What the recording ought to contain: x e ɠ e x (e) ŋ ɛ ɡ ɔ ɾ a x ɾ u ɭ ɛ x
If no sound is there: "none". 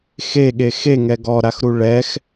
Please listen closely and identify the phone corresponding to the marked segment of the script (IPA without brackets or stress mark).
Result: e